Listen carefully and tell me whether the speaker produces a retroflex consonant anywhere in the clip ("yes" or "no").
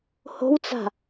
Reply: no